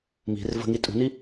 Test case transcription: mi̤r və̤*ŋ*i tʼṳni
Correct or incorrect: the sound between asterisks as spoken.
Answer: correct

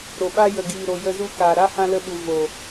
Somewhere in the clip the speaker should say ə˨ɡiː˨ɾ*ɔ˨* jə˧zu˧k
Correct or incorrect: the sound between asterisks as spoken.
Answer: incorrect: o˨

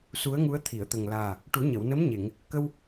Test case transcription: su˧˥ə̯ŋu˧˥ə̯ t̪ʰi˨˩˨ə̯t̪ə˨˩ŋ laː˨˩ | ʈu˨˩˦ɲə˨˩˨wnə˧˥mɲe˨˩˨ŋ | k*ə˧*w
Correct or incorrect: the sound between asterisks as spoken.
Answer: correct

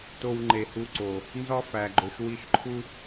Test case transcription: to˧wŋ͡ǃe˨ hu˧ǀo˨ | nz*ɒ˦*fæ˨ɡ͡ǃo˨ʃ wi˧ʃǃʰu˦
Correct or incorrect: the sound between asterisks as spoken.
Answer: correct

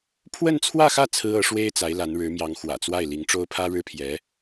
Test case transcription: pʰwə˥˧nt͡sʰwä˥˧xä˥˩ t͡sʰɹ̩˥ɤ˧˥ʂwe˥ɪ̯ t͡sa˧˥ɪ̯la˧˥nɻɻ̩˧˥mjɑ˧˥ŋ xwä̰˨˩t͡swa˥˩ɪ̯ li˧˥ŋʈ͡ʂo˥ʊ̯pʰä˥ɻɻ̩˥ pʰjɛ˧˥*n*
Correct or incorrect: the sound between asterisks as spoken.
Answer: incorrect: none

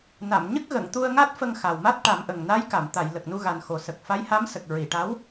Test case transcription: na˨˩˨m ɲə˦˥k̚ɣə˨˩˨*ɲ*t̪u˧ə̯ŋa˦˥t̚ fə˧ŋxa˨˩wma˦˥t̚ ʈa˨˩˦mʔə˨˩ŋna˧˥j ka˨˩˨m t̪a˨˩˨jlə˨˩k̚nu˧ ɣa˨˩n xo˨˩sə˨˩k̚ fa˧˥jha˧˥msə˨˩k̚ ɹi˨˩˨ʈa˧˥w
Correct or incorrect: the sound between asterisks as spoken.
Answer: incorrect: ŋ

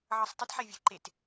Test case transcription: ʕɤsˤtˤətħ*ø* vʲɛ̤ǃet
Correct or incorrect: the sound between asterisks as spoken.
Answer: incorrect: ɛ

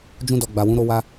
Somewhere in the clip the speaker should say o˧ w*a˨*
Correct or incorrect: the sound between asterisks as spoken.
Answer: incorrect: a˧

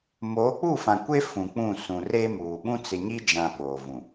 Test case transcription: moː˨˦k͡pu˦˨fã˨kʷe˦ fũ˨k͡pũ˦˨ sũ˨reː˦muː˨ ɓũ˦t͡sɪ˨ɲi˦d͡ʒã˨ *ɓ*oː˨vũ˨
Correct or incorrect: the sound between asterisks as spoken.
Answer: correct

